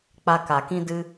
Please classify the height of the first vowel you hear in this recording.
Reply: low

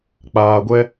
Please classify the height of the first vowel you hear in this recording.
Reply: low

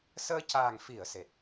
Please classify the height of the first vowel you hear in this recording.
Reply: mid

